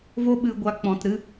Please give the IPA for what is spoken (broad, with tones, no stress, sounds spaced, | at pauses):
v o˧ ɓ ɨ˨ ɡʷ a˨ k͡p ɔ̃˨ t ɾ ɨ˦